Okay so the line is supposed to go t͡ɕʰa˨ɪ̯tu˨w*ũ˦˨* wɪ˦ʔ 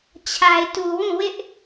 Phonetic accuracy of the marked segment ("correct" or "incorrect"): correct